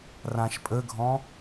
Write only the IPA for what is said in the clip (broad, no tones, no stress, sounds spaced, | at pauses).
r ã ʃ pʼ ə ɡʱ ɔ̃